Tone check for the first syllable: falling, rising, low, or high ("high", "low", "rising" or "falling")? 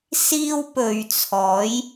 high